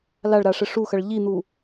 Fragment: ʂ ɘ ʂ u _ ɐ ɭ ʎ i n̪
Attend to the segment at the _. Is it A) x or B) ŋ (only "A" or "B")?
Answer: A